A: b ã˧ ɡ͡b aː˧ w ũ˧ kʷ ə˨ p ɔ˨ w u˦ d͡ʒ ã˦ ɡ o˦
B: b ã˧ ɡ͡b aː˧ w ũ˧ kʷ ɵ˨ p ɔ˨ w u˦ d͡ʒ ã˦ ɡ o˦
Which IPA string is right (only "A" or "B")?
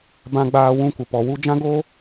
A